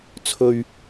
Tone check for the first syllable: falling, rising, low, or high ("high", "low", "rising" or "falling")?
low